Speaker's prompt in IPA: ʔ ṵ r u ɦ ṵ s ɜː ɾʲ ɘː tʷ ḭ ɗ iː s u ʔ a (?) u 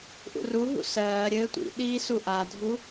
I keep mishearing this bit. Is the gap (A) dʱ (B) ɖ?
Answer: A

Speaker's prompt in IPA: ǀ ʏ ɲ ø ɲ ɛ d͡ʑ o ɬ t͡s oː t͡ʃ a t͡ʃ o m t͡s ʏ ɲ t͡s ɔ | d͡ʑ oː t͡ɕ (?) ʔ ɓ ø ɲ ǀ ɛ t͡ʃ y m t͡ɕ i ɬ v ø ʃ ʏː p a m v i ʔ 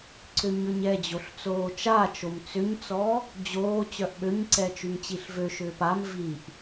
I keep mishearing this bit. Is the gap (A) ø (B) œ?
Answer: B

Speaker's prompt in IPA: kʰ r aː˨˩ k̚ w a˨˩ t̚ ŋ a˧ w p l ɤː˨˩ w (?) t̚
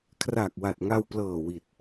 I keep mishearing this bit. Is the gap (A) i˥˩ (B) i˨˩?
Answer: B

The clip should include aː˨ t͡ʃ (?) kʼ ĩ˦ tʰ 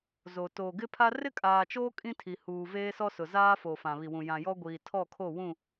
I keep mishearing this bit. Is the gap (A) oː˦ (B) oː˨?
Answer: A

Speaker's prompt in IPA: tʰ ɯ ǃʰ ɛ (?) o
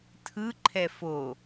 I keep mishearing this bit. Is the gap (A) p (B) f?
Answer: B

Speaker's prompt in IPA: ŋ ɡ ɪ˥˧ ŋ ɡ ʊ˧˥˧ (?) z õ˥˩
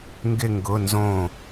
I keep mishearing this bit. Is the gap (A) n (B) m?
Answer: A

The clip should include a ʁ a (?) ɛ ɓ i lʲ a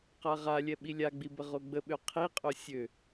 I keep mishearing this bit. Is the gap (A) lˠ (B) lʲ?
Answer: B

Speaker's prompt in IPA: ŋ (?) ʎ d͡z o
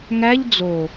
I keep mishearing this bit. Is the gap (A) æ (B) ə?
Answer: A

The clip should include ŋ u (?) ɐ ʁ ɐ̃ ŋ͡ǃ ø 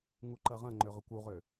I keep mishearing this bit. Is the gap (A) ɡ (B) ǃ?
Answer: B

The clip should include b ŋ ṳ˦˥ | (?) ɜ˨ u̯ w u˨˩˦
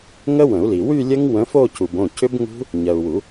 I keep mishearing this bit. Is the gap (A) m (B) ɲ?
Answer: B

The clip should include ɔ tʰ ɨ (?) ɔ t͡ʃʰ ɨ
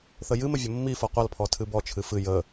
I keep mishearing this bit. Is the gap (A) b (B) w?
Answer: A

